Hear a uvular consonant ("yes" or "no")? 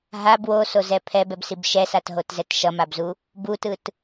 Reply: no